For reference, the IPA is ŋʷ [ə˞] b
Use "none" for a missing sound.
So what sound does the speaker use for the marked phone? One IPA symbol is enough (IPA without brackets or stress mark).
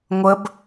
ə